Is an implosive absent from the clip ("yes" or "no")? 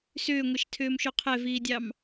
yes